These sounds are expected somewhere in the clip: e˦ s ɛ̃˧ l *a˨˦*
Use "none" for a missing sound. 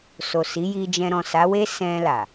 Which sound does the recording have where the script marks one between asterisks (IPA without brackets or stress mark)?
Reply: a˨